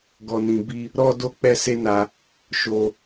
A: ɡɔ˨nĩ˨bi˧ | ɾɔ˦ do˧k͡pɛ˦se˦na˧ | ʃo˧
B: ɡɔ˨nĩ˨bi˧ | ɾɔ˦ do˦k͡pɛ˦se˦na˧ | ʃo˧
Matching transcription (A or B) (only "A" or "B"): B